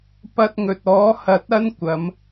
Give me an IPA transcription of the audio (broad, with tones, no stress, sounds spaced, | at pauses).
p ɐ˧ t̚ ŋ ɵ˨ t̚ ɔː˨˥ h ɐ˨˥ t̚ ɐ˥ n kʷ ɐ˨˧ m